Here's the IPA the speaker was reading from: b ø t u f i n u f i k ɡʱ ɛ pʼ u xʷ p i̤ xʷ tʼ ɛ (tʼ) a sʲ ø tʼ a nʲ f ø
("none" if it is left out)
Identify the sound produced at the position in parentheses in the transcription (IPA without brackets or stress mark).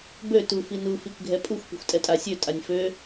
tʼ